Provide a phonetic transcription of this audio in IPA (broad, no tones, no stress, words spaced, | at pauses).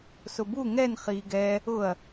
sʊbu ŋɛn χiːɡɛ | ʊɐ̯